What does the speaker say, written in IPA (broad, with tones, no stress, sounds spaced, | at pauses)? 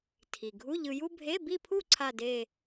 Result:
tʰ i˩ ɡʱ u˧˥˧ ʎ ɯ˧ j u˥ bʱ e˧˥˧ b i˥˧ pʰ u˥˧ ǀʰ a˥˧ d e˥˧